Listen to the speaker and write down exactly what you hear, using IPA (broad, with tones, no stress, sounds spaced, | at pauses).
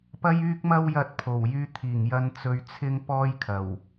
p ɐ˥ j yː˥ k̚ m ɐ˥ w j ɐ˧ t̚ pʰ o˨˩ w j yː˧ t̪ʰ iː˨˩ ŋ j ɐ˧ n t͡s ɵ˧ ɥ t͡sʰ ɪ˥ ŋ p ɔː˥ j kʰ ɐ˨˩ w